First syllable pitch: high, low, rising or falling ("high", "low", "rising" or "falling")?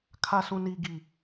low